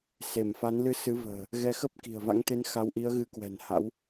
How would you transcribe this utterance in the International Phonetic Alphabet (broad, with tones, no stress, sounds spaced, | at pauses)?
s e˧˩ m f a˨˦ n l ɨ˧ s ɨ˨˦ v ə̤ː˨˩ | ɣ ɛ˨˦ x ə˦˥ p̚ k i̤˨˩ ə̯ v a̰˧˥ ŋ t̪ e˧ n x a˨˦ w ʔ i˨˦ ə̯ ɣ ɨ˨˦ k w ɛ̤˨˩ n h a̰˧˥ w